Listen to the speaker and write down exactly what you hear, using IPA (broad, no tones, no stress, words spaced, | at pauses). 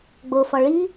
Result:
ɡ͡bofɒ ɭi